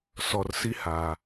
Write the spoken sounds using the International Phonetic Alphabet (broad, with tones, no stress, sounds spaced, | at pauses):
s ɔ˨ r s i˦ h aː˨